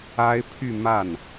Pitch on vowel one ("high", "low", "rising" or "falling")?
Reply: high